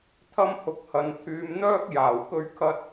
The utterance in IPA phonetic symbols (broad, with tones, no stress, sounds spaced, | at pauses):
t̪ʰ ɐ˥ m h ʊ˧ k̚ h ɐ˨˧ n t̪ʰ yː˨˧ m n̪ œː˥ k̚ j aː˨˩ w k ɵ˧ ɥ kʰ ɐ˧ t̚